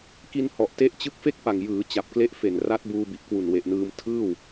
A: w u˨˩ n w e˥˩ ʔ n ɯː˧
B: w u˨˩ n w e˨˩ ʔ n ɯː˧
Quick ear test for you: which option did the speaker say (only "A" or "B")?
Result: B